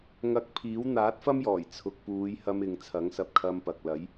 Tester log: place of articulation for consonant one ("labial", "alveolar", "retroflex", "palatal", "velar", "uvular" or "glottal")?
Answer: velar